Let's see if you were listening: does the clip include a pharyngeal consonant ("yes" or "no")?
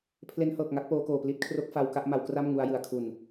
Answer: no